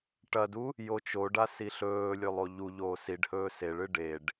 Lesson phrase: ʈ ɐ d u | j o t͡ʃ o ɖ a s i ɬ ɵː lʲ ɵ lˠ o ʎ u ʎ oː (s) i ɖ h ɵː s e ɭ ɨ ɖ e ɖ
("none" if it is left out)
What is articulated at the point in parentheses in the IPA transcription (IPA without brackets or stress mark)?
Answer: s